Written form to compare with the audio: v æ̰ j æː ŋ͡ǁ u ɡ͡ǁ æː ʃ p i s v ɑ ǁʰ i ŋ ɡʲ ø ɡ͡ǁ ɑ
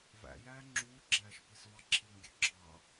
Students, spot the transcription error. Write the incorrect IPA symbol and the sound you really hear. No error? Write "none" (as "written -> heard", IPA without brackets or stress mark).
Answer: u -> uː